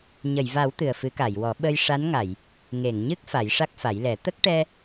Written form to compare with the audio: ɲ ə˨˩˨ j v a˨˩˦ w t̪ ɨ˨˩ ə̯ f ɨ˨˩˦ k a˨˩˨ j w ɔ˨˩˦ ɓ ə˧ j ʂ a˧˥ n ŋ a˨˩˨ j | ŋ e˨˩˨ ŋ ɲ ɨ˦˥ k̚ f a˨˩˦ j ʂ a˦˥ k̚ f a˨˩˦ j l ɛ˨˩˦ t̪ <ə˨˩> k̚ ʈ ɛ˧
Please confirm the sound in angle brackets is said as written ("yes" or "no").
no